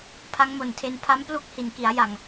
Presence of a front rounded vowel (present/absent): absent